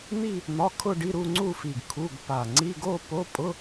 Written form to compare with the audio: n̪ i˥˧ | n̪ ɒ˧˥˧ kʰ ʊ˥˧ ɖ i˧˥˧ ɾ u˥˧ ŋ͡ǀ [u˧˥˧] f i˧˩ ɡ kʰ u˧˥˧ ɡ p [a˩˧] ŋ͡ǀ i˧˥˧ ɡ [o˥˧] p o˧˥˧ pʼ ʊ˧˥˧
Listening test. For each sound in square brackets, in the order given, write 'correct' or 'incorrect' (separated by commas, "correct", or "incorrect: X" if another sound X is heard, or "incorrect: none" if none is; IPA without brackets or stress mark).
incorrect: u˥˧, incorrect: a˧˩, correct